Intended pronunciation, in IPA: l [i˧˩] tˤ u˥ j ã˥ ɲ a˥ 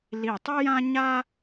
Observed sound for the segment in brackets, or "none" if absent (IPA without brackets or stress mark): i˧˩